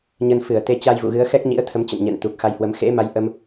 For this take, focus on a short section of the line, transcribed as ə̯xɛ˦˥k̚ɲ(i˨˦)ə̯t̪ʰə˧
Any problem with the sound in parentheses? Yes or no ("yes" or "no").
yes